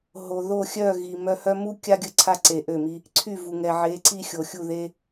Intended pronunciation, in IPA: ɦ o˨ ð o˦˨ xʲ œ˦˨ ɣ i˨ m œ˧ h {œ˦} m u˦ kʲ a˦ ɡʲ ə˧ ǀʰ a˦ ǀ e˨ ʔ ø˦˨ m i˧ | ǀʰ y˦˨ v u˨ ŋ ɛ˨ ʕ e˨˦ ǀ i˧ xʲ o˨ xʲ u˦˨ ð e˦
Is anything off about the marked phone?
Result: no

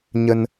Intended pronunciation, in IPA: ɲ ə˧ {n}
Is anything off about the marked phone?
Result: no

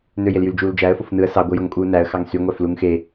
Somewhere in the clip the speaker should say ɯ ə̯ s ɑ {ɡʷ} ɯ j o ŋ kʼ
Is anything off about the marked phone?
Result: no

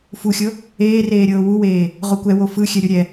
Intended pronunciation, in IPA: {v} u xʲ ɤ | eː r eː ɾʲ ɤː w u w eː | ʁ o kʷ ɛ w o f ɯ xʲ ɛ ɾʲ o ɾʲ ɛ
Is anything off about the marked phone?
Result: yes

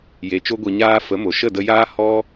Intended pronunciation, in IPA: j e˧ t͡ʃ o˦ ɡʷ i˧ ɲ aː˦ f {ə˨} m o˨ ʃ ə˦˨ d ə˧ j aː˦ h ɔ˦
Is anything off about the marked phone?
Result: yes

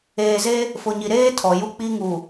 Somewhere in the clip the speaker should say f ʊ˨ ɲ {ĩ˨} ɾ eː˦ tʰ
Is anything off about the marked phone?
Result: yes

